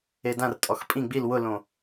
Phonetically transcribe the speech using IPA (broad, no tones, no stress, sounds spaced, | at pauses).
e d ã r tʼ ɔ x pʼ ĩ ɡ͡b i l w ʊ l õ